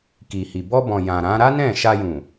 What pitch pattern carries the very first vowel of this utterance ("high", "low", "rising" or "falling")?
low